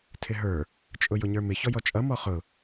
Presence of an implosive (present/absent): absent